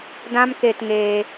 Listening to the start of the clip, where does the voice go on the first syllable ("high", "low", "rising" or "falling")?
high